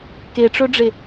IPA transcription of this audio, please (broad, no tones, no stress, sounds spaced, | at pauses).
k e ʈ͡ʂ ɵ ɖ͡ʐ e